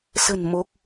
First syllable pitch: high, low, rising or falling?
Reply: low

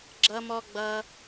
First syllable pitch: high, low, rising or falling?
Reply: high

